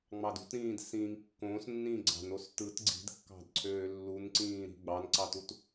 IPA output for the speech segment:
ŋ͡mɑdṳtɾĩːd sĩːŋkːõːsnːĩː ɡ͡ǀɑ̤nos tɯt ɡ͡ǀi̤dkːɑ̤d ǀʰøːlːunǀĩːɾi̤ ɡ͡bɑnǀɑtut

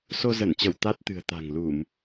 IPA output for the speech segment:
so˧zə˧˩nt͡ɕə˧˩w t̪a˦˥t̚t̪ɨ̤˨˩ə̯t̪a̤˨˩ŋlu˧˩˨m

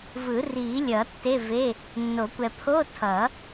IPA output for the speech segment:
vɯ˨˩˦ri˨˩˦lʲʌ˨˩˦ tːe˧˥˧ve˧˥˧ | nːo˨˩˦kʷɛ˨pʰo˧˥˧ tʰʌ˨˩˦

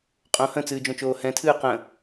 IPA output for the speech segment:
qʼõ hə̃t͡sɨːd͡ʒõt͡ʃoː hɛ̃tʰɨː qə̃

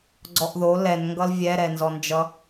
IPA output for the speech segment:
ɡ͡ǀɔʔðo lɛnŋɡʌl vʲɛɾɛnzɔnd͡ʒʌ

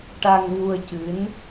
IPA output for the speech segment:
ʈa˧ŋvu˧ə̯cɨ˧˥n

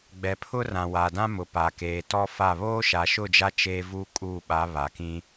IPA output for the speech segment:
ɡ͡bɛ˨pʰʊ˦ rã˨wa˨dã˦mʊ˨ pa˨keː˨tɔ˦fa˦˨ βoː˦ʃa˨ʃʊ˦˨d͡ʒa˦ t͡ʃeː˦ vuː˦kʼuː˦˨ ɓa˨˦βa˨kĩ˦

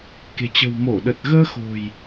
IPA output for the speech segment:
ke̤˨˩t͡ɕə̤˨˩wmo˧˩ɗə˨˩t̚ ɣəː˧xo̤˨˩j

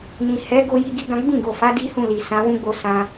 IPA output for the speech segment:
nĩ˨ hɛ˨˦ ɡo˦ji˦ɡi˦ɡã˦ ɡ͡bĩ˦˨ɡo˨ fa˨˦ di˦hũ˦˨ li˨sã˨˦ wũ˦ɡ͡bo˧ sã˧

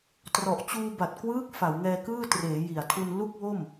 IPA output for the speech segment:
trɔ˨˩ʔt͡ɕuː˧ba˨˩t̚ kwɯː˦˥k̚ fa˩˦wŋɛː˧ kɯː˥˩treː˩˦ji˨˩a̯tʰu˧n lu˥˩k̚wo˥˩m

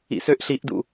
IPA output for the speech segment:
ḭsøʔɬiʔdṵ

